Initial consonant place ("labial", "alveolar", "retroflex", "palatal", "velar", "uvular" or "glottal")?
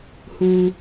glottal